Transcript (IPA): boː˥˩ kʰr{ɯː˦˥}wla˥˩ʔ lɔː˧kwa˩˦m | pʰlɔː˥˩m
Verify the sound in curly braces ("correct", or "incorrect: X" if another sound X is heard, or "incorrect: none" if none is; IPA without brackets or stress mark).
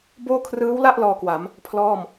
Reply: correct